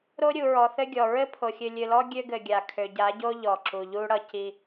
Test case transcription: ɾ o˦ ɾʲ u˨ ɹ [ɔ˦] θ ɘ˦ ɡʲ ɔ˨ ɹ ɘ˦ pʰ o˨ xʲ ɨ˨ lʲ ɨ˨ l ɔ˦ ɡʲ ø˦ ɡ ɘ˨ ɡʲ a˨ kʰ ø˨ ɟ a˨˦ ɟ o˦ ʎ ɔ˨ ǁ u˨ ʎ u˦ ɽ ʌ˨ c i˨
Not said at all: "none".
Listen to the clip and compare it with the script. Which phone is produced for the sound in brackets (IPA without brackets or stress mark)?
ɔ˨